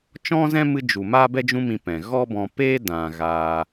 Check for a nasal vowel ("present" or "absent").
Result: present